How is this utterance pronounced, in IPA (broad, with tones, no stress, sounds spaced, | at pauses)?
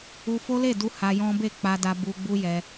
u˧ f o˦ l e˦˨ d u˧ h a˧ j ɔ̃˦ b e˦˨ k͡p a˧ d a˧ b u˧ ɡ͡b u˦ j ɛ˧